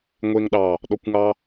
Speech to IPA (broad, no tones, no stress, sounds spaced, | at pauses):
ŋʷ e ŋ ɗ ɑ | ɗ ɔ kʷ ŋ ɑ